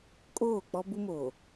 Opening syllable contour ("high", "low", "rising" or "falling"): falling